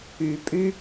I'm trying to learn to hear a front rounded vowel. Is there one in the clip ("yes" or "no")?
yes